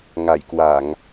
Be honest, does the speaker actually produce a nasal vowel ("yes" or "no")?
no